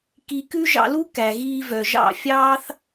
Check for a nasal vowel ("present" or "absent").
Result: absent